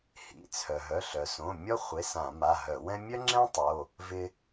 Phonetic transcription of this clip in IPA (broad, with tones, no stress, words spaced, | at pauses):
hḭ˩˧˩t͡sʰœ˩ɦœ˩˧˩ ɬœ˩ sõ˩˧˩ mʲɔ˥ χʷɪ˩˧˩ sã˧˩˧ma˩˧˩ɦœ˧˩˧ wɛ̃˧ mʲœ˥ŋ͡ǁɛ̃˥ tˤo˩˧˩ | vɪ˧